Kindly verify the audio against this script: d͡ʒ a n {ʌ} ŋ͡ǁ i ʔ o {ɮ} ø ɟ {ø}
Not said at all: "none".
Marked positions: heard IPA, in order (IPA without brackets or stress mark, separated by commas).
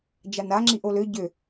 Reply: a, l, ø